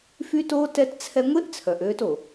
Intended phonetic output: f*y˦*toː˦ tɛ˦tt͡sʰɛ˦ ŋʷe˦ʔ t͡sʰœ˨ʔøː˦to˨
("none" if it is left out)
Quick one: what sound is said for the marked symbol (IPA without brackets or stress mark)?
y˦